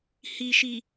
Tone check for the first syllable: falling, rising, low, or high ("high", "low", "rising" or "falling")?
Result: low